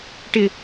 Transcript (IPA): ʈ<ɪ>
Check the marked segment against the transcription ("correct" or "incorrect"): correct